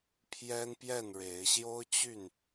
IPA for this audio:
pʰ j ɛ˦ n p j ɛ˥˨ n ɻ e˨˦ ɪ̯ ɕ j o˦ ʊ̯ t͡ɕ y˥˨ n

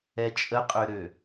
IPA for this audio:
ɛ t͡ʃʼ ə qʼ ʏ ɾ ø

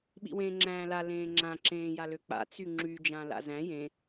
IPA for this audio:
ɓ ḭ w ẽː ŋ͡ǁ æ̃ː l a l ẽː ŋ͡ǁ ã ǁ ẽː j a l ø k͡p a̰ t͡s y ŋ͡ǁ y d͡ʒ ã l a̰ z æ̃ j ẽ

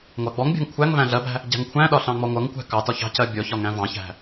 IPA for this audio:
ŋʷ ɑ ɡ͡b ɔ ŋ bʲ ɑ̤ ŋ kʷʰ æ ŋ v æ̃ ɮ ɜ b æ̤ | ɟ æ̤ ŋ kʷʰ æ̃ ɗ ɒ ɬ ɑ̃ ŋ͡m ɔ ŋʷ ʌ ŋ kʷ æ̤ k ɑ t ɒ ç ɑ̤ c ɜ bʲ ɔ ç ɒ ŋ æ̃ v ɑ̃ ç æ̤

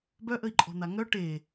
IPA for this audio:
b œ ʔ ə i̯ ǃʼ ɔ̤ n̪ a ŋ œ ʈ eː

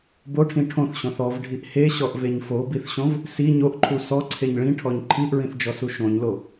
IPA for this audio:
b o ʈʰ ĩ ʈʰ õ θ ɕ õ θ ɔ v ɖʱ i ʔ h e ɕ ɔ ʔ v e ɲ f o b i θ ɕ õ v | s i ɲ o ʔ ǃʰ u s ɔ ǀʰ e ɲ ɭ ĩ ʈʰ ɔ ɲ ǃʰ i ʔ ɹ ĩ θ d͡ʒ ɔ s u ʃ õ ɲ l o

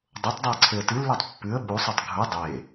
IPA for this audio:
dˤ o tˤ dˤ u ə̯ ǀʰ e ə̯ t ɨ lː o tˤ pː ʉ ə̯ ɓ u sˤ u tˤ ɡʱ u dˤ e

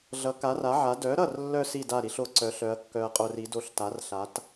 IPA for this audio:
ɮ ʌ˩˥ k a˩˥ r a˩˥ ʕ a˩˥ d œ˩˥ ɾ ʌ˥˩ r lː œ˧ s i˥˩ d a˥˩ ɾ i˧ ɬ o˧ ǀ œ˩˥ ɬ œ˩˥ ɐ̯ kː œ˧ ɐ̯ qʼ o˧ r i˩˥ d o˧ ɬ t a˩˥ r ɬ a˩˥ t

